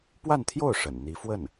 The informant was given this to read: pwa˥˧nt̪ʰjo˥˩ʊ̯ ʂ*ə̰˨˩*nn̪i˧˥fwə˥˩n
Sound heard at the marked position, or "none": ə̰˨˩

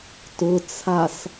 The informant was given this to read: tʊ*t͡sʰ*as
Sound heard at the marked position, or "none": t͡sʰ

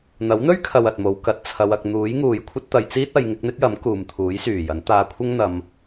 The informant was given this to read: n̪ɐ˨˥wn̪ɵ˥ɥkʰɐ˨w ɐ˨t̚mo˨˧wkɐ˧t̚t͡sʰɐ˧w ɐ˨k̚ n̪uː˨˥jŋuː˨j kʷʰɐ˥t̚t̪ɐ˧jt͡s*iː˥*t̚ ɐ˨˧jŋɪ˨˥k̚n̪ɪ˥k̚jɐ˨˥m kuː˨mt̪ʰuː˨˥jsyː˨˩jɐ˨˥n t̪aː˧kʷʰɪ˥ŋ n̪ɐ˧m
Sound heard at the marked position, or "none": iː˥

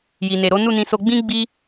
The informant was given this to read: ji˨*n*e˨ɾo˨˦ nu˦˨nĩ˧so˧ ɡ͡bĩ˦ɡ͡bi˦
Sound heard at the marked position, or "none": n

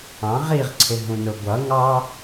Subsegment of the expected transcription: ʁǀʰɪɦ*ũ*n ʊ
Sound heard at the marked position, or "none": ũ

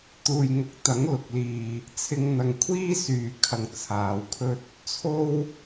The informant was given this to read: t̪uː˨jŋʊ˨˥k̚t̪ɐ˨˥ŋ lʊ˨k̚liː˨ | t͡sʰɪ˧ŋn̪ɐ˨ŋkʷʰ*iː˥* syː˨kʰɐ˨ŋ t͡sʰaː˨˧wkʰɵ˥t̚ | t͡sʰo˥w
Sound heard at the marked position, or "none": iː˥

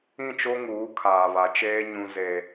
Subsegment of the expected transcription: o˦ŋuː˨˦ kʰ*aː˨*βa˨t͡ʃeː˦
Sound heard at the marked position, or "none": aː˨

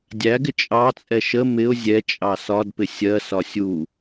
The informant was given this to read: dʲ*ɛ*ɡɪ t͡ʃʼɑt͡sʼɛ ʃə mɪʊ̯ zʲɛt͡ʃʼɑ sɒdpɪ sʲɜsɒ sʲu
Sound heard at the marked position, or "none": æ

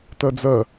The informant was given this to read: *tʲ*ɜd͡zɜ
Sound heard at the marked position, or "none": t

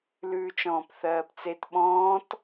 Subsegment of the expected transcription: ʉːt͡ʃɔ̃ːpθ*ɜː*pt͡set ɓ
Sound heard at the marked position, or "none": ɜː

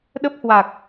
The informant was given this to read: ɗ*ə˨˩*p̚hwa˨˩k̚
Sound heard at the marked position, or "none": ə˦˥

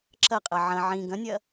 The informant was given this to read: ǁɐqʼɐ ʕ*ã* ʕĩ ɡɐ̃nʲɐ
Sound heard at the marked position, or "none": ɐ̃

